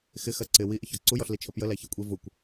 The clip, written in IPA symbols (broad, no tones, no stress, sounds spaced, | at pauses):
x ɪ x ɜ ǀ ɪ w i ʔ ɪ ç ɒ ǀ u j ɔ ɬ l i t͡ʃʰ ə p j ə l æ ç æ kʷʼ i v ʊ kʷ